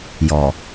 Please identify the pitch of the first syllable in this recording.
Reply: low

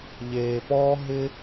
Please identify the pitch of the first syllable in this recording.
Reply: low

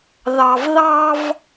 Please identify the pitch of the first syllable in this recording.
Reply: low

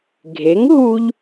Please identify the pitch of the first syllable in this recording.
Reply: rising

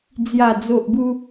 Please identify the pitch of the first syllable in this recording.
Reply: low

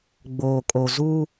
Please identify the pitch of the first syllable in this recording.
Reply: low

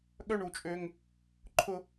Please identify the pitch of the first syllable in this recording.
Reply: high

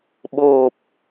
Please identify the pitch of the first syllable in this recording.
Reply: low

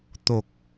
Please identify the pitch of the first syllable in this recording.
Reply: low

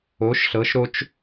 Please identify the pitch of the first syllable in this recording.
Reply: rising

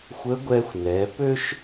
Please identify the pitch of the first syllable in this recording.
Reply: rising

